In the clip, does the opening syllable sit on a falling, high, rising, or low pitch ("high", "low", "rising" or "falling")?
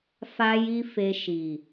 high